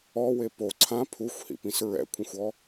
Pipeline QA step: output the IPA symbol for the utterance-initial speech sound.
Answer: ɔ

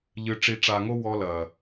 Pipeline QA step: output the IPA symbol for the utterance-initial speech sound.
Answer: ʎ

